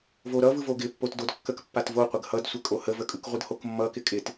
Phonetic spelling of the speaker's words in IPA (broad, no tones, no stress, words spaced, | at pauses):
voɾʌvɯvo ɡɪpːot dodkːək pːatvoqʷəɡ hʌdsʷɪkʼo həvəkʼɯkʁʷɯd hokmːʌkɪ kʼɪt